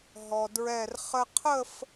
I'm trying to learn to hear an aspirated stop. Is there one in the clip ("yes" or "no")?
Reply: yes